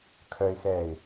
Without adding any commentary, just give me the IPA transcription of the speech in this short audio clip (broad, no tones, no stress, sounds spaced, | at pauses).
kʰ œ ɪ̯ x ɛː ɪ̯